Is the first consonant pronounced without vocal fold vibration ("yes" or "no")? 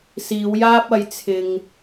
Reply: yes